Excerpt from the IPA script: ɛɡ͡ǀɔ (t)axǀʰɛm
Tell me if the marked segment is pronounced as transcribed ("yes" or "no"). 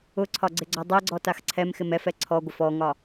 yes